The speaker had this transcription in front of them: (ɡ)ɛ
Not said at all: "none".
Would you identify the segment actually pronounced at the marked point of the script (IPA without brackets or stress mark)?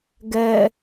ɡ